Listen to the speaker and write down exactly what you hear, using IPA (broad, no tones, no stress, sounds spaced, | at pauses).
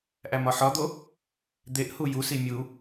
ʔ æ m ɒ ħ ɒ d̪ o | d̪ e ʔ h u j u s i mʲ u